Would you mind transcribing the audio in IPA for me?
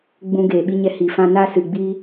ɡ͡b ũ˧ ɡ eː˨ ɓ i˧ ɲ ɛ˧ h i˨ f ã˧ n a˧ s ɨ˨ ɡ͡b iː˧

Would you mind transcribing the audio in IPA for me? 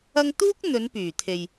ɐ˥ ŋ t̪ uː˥ k̚ n̪ ɵ˨˧ n p yː˨˩ t̪ʰ e˨ j

